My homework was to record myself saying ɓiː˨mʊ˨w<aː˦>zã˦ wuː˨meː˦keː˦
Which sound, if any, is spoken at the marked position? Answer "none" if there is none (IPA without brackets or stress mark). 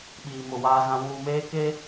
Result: aː˦